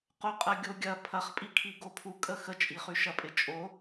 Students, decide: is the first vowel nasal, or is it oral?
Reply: oral